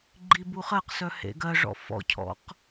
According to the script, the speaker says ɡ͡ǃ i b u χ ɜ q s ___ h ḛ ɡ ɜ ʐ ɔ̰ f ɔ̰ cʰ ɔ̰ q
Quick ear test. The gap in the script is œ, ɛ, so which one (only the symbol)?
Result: œ